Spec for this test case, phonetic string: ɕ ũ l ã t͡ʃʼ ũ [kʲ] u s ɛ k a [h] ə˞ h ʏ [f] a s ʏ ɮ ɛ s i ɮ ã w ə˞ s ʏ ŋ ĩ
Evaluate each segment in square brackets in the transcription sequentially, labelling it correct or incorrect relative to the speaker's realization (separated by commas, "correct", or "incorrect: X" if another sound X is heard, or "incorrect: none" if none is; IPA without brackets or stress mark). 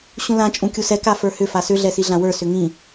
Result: correct, incorrect: f, correct